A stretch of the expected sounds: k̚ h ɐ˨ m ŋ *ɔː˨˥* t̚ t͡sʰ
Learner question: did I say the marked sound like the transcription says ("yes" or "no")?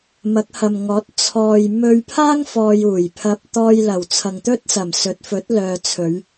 yes